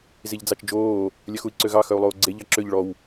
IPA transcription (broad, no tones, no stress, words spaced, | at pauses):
ziʎd͡zɑt͡ʃd͡ʒoː | lʲœxui̯ǀøɣɑ xœu̯lˠoːɡ͡ǀe ʎɑǁøʎ ɭɔw